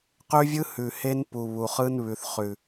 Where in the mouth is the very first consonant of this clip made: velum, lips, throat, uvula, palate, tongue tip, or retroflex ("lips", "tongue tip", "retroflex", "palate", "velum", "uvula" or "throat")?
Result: uvula